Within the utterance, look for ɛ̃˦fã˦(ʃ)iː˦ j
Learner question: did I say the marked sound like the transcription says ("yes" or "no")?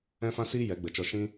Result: no